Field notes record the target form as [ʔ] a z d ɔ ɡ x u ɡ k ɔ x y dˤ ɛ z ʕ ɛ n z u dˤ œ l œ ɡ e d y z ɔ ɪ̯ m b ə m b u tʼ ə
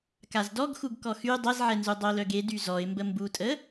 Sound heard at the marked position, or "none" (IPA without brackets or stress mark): k